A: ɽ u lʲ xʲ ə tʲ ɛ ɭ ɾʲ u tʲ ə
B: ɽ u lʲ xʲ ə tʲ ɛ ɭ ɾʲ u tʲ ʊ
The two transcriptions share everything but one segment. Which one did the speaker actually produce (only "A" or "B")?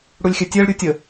A